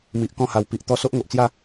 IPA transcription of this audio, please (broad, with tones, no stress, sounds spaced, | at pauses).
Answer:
m i˨ ʔ k ɔ̃˥˧ h a˨˩ w p i˨ ʔ t̪ ɔ˧ s o˦ ʔ ŋ o˨ ʔ t͡s j a˥˧